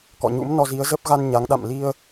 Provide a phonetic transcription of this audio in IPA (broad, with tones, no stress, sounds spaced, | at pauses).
k ɔ̰˧˨ ɲ ṵ˧˥ m n ɔ˧ z i˨˦ ə̯ z ə˦˥ p̚ ɣ a˧ n ɲ a˨˦ ŋ ɗ a̰˧˨ m l i˧ ə̯